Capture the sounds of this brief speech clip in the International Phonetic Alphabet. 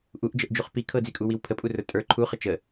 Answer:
ʔuʔd͡ʒəʔd͡ʒuχ pi kʰɤd͡zikʼuwiw pʰəpʼurə˞ tʼə˞ ǃʰuχə t͡ʃə

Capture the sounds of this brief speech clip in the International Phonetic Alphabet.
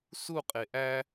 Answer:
suqʼe ʔæ

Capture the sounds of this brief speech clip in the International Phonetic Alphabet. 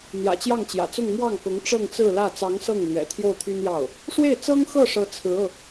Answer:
n̪jä̰˨˩t͡ɕjɑ˥˩ŋt͡ɕjä̰˨˩t͡sʊ˥˧ŋ mwɑ˥˩ŋkʊ˧˥ŋ ʈ͡ʂɤ˥˧ŋt͡sɹ̩˥˧lä˥˩ t͡sɑ˧˥ŋ sɤ˥˩ŋlɥɛ̰˨˩ t̪ʰjo˥˩ʊ̯t̪ʰy˥njɑ˥˩ʊ̯ | ʂwe˥˩ɪ̯t͡sɤ˥ŋxɤ˥˩ʂɤ˧˥ t͡sʰɹ̩˧˥ɤ˧

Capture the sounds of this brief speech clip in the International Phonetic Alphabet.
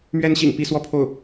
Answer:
mɥɛ˥nɕḭ˨˩ŋ pi˥˧ swɔ˥˧pʰo˥˩ʊ̯

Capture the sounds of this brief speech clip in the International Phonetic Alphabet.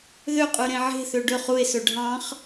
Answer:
ðøqʼʉɾẽ ʕe̤θø ɖɵχ ue̯sɵ ɖʱɑ̃χ

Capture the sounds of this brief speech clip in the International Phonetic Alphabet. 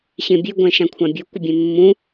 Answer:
ɕẽbʲø ɡʷɛ̃ʃãkʷʰãbʲo kʷəbʲẽmːũ

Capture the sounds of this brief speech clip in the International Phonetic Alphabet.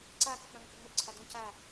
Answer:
ǀaːk͡pə k͡pãŋkɵŋ͡mɵɡǀʰa dũ ca

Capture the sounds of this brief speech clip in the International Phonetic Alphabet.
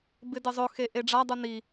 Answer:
bɪdɪzˤʊ xeʔeɖ͡ʐa dˤuni

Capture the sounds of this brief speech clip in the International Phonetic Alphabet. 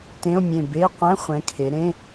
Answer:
tẽ˧˥˧o̯mʲẽ˧˩ be˧˥˧ qʷɛ̃˧˥˧χʷɛ̃˩˧ kʰe˩˧ɾẽ˧˥˧

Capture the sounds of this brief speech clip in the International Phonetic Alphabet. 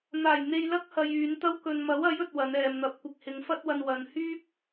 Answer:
n̪aː˨˩j n̪e˧j lɐ˥k̚hɐ˨j yː˨˧nt̪ɐ˥w kɵ˨nmɐ˨˥wɐ˨˥jɵ˨t̚ wɐ˨˧nɛː˨mn̪ɐ˨˥p̚ kʷɪ˨k̚hɪ˨˧ŋfɐ˥t̚wɐ˧n wɐ˨n hyː˥p̚

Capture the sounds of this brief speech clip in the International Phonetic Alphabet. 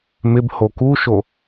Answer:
mɪbho kuʃo

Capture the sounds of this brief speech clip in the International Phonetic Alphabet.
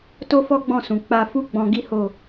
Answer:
to˦fɔ˦ɡ͡bɔ̃˦˨sũ˨ k͡pa˧fu˦ ɡ͡bɔ̃˧ɡi˦ho˦˨

